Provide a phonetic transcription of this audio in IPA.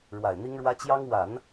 ɻ w a˨˩ ɪ̯ n̪ i˥ ŋ ɻ w ä˥ t͡ɕ j ɑ˥ ŋ w a˨˩˦ n

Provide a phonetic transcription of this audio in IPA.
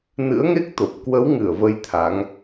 n ɨ̰˧˥ ə̯ ŋ e˦˥ k̚ t̪ o˨˩ p̚ k w ə˨˦ w ŋ ɨ˧˩ ə̯ v ə˧ j t̪ʰ a˨˦ ŋ

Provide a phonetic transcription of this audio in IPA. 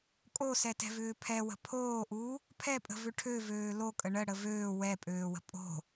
kʼ o s ɛ t ɛ̤ v ʏː pʰ ɛ w ə̤ pʰ oː ʔ uː | pʰ ɛ pʼ ə̤ v ʏ ʈʰ ø v øː l o kʼ ə ɳ ə ɽ ə v øː w ɛ pʼ øː w ə̤ pʼ o̤

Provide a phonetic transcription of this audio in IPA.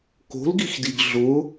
k o̤ l ɡ i x d i ɡ ɮ ʊ

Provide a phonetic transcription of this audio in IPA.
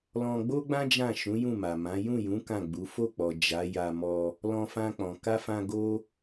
l ɔ̃˧ ɡ͡b o˦ ɡ͡b ã˦ d͡ʒ ã˦˨ ʃ ũ˨˦ j ũ˦˨ m a˨ m ã˨˦ j ũ˦˨ j ũ˨˦ k ã˦˨ ɡ͡b u˨˦ f o˦˨ k͡p ɔ˨ d͡ʒ a˨˦ j a˧ m ɔ˧ | l ɔ̃˧ f ã˧ k͡p ɔ̃˨ k a˧ f ã˧ ɡ o˦

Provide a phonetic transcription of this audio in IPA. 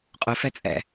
qʼ ʊ f ɛ t͡sʼ ɛ̰

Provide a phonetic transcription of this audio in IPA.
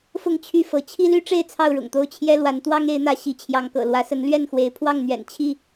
f ʊ˥˨ ŋ t͡ɕʰ y˥˨ f ɤ˨˦ t͡ɕʰ i˦ l y˦ ʈ͡ʂ e˥˨ ɪ̯ t͡sʰ ɑ˥˨ ʊ̯ ɻ ʊ̰˨˩ ŋ t̪ o˥˨ ʊ̯ t͡ɕʰ j ɛ˦ l w a˨˦ n t̪ w ɑ˦ ŋ e˨˦ ɪ̯ n̪ ä˨˦ ɕ i˨˦ t͡ɕʰ j ɑ˨˦ ŋ k ɤ̰˨˩ l w ä˨˦ s ə˨˦ n l ɥ ɛ˥˨ n x w e˨˦ ɪ̯ pʰ w ɑ˥˨ ŋ n̪ ɥ ɛ̰˨˩ n t͡ɕʰ i˥˨

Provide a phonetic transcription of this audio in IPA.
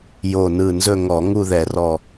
j o˧˩ n ɯ˧˩ n z ɵ˥˧ ŋ ɔ˧˩˧ ŋ u˥˧ ð ɛ˧˩˧ r ɔ˧˩

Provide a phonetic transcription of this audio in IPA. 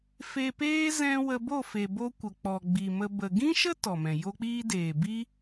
f e˧ p eː˦ z ɛ̃˦ w ə˧ b o˦˨ f e˨ b o˧ kʷ ə˨ k͡p ɔ˨ ɡ͡b i˨ m ə˧ b ə˨ ɡ ĩ˦ ʃ ə˦ t ɔ˨ m ɛ̃˨ j o˦ k͡p iː˦ d eː˨ b i˦

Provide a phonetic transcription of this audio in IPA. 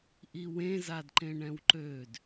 ʔ i w ẽ z a d ǃ ẽ ɳ ɛ̃ w ǃ ø d

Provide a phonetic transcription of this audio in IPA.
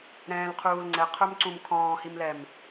ɾ ɛ̃ː l qʰ uː l ŋ͡ǀ ɛ qʰ ə˞ m ǀ ũ m kʰ ɔ̃ː h i m l ɛ m

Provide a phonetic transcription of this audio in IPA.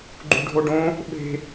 ɡ͡ǃ ṳ ɖʱ o ɖ õ | ɓ e̤

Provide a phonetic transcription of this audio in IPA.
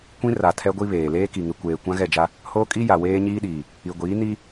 kʷ ĩ˦ r a˨ tʰ ɛ˦ ɡʷ i˦ β eː˨ l eː˦ k i˨ ŋ ɪ˨ kʷ eː˨ kʷ ã˦ ɣ ɛ˦˨ d͡ʒ a˦ | h oː˦ kʼ i˦ j a˨ w eː˦ ɲ iː˦ ɗ iː˨ | i˨ ɡʷ iː˨˦ n i˦

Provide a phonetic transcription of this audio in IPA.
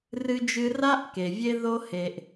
r ɨ˧ d͡ʒ ɨ˧ r a˧ ʔ k e˩ vʲ e˥ ð o˥ h e˧ ʔ

